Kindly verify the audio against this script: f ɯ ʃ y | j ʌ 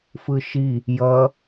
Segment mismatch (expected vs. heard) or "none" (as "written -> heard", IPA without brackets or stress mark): y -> i